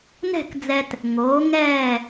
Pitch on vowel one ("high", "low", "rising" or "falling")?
falling